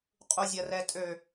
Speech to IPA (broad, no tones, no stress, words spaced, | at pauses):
qʼuzʲɐrɛtʼø